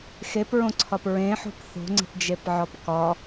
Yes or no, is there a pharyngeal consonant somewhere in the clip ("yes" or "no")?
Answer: yes